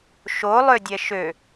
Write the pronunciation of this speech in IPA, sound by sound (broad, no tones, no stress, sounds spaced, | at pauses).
ʃ o lˠ ø dʲ ɛ ʃ ø